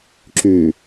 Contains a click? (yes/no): yes